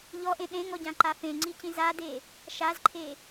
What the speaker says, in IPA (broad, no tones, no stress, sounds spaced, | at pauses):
ʎ ɔ ʔ ẽ ɗ ẽ ŋ ɔ ɟ ã ǃ a f ẽ ŋ͡ǀ i c ĩ z a d e | ʃ a z ǃʰ e